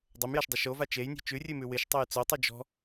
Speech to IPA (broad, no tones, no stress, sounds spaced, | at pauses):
dˤ o m j a ʃ dˤ ʊ ʃ o v a t͡ʃ e j nʲ ɔ̤ t͡ʃ ʉ rʲ ʉ m ʉ w ɪ ʃ tˤ o j t͡s o tˤ ʉ d͡ʒ ɔ̤